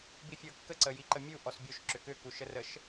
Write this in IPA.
bifʲɤkːəǀə jiǃəmʲu ʔɔsbʲoʃ ǁʏkʏku ʃərəʃ

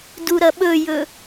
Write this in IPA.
duɾɐɓɵjɵ

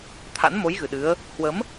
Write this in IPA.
t̪ʰa̰˧˥nmo˨˦j ɣɨ˨˩ɗɨ˨˦ə̯ | hwə˨˦m

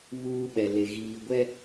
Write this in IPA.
βuː˦ ɓɛ˨le˨ ɣiː˨ ɡʷɛ˦

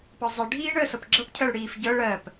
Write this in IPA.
pɤzˤi ɖʱiːɳəːsɤpɡ͡ǁɤp cʰəːɭɽiːfɟɤ ɭɜp

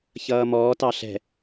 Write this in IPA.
çʌːmɔː tɑɬɛ̤

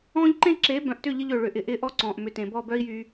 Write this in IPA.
ɔ̃ː˦ʎǃẽ˦ ǁe˨˦bœ̃˨ʔtʏ˦˨ ʎɪ˦ʎø˨ɭʏ˨ ʔɪ˨˦ʔɪː˦ ʔɔ˦ǀɔ̃ː˨ʔmʏ˨tẽ˨ bɔ˦˨bœ˦i̯ jyː˦

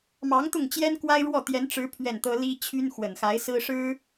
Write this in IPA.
mɑ˧˥ŋt̪ʊ˥˩ŋ t͡ɕjɛ˥nkwa˥ɪ̯ ɻwɔ˥˩t̪jɛ˧˥nʈ͡ʂɻ̩˧˥ pʰɥɛ˥˩nt̪ɤ˥ li˥t͡ɕʰy˥n xwə˨˩nxa˧˥ɪ̯sɹ̩˥ ʂɻ̩˥

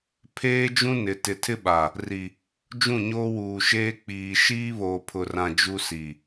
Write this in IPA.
pʰeː˦d͡ʒũ˦ nɪ˨ tɪ˨tʰɪ˦ɓa˨ | ri˨ | d͡ʒũ˦˨ɲoː˦wuː˨ʃeː˦ k͡piː˨ ʃiː˦βoː˨pʰʊ˨rã˨ d͡ʒu˦si˨

